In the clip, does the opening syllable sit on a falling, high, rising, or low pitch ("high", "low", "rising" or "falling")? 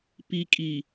low